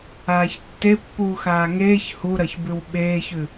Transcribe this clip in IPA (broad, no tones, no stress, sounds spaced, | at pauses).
aː ç tː e pː uː x aː ŋ eː ç h u ɾ ɐ ç b ʉ w ɓ eː ç ʉ